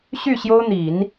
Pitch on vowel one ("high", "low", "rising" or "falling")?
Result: falling